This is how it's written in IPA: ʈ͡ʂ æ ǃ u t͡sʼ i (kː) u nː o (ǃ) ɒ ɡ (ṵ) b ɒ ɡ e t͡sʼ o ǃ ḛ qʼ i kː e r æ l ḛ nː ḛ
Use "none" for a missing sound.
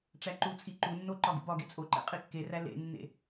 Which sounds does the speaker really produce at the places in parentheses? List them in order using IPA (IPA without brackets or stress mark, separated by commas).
ǃ, ǃ, ṵ